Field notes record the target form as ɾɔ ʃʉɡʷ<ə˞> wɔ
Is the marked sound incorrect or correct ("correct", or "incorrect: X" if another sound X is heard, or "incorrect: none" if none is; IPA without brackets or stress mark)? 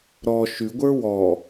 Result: correct